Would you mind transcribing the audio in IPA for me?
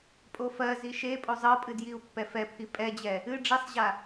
pʼ o f ɜ z i ʃ e pʼ o zˤ ɤ pʼ ɨ d j i u̯ pː ɛ f ɛ pʰ i pʼ ɛ d͡ʑ ɛ | ɨ ɖ͡ʐ i sˤ ʑ a

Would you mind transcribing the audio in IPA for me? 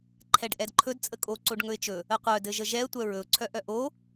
ǃʰ ɛ ɖ ʔ ɛ d ǃʰ ɵ d t͡sʼ ə kʼ o ǀ o ɖ ŋ ɵ ɪ̯ t͡ʃ ɵ | ə qʷ œ d ɘ ʒ ə ʒ ɛ ə̯ tʷ œ ɹ ɵ ʊ̯ ǀʰ œ ʔ œ ʔ o

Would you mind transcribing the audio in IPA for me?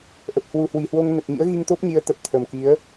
ʔ ə˨˩ p̚ h w u˨˩ h w i˨˩ h w o˧ ŋ n ə˨˩ t̚ ɲ ḭ˧˥ ə̯ ɣ i˧ ŋ t̪ o˦˥ p̚ ɲ i˨˦ ə̯ t̪ ə˨˩ p̚ t̪ʰ ə˨˩ m k i˨˦ ə̯

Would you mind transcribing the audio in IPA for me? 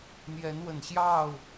n̪ j ɛ˨˦ n w ə˨˩ n ɕ j ɑ˥˨ ʊ̯

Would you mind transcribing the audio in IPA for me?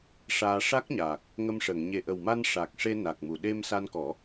ʂ aː˧ ʂ a˦˥ k̚ ɲ aː˨˩ k̚ | ŋ ə˧ m ʂ əː˨˩˨ ŋ ɲ e˨˩ ʔ ə˨˩ w m a˧ n ʂ a˨˩ k̚ ʂ e˧ n a˨˩ k̚ m u˨˩˨ ɗ e˧ m s a˧ n k ɔ˨˩˦

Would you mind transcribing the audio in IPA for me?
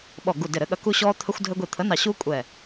ɓ ɔ˧˩ ɡ u˧˩ d ɪ˧˩ ɾ ɘ˨˥ ɠ ɐ˨˥ k u˦ ɕ ɔː˦ t̪ʰ ə˦ xʷ dʱ ɘ˦ ɡʷ i˧˩ t̪ʰ ə˨˥ n ɑ˧˩ ɕ uː˦ kʷʼ ɛː˧˩

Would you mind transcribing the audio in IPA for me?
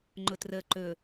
ŋ͡ǃ ʊ t r ə ǃ ɵ

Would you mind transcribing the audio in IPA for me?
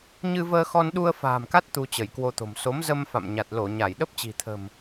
ɲ ɨ˧ v əː˧ x ɔ˧ n ɗ u˧ ə̯ f a̤ː˨˩ m k a˦˥ t̚ t̪ u˧ t͡ɕ ə˧˩ j k w o˧ t̪ o̤˨˩ m s o˨˦ m z ə˧ m f a̰˧˨ m ɲ a˨˩ t̚ l o˧˩ ɲ a˧˩ j ɗ ə˦˥ p̚ t͡ɕ i̤˨˩ t̪ʰ ə̤˨˩ m

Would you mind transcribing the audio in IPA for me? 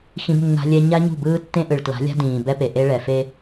x ĩ˦ b nː a̤˦ lʲ ɛ˦ ɲ a˦ ɲ ṳ˦˨ b ɯː˦ tː ẽ˦ ʔ ɯ˨ ɭ t l a̤˨˦ lʲ a̤˦ d ĩː˨ b ɛ˦ p e˨ ʔ e˦ ɭ ɛ˨ f e˦

